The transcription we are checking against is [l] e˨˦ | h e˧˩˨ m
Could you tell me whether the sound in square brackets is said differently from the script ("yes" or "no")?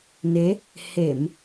yes